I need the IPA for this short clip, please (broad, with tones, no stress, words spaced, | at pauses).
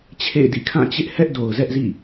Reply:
t͡ɕʰḛ˦˨ɪ̯dḭ˦˨ kʰã˦˨t͡ɕɪ˦ʔ hɛ˦ʔdo˨ʊ̯zɛ˦ʔzḭ˦˨